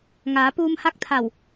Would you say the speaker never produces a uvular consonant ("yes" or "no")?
yes